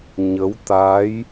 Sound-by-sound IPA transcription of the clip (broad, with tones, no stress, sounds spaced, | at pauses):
ɲ ə˨˦ w t̪ aː˨˦ j